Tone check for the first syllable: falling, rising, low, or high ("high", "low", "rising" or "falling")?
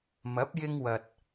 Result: rising